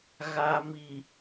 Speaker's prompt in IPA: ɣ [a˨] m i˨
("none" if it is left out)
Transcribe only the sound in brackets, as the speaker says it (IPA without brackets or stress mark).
a˨